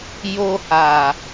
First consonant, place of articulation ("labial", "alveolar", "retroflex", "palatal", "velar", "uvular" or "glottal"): palatal